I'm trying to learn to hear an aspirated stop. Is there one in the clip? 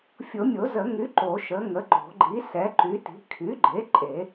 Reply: yes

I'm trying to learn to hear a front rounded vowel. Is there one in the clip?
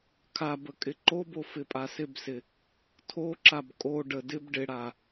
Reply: no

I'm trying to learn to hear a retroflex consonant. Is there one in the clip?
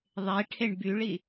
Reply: yes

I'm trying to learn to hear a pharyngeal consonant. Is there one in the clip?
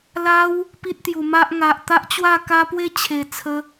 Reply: no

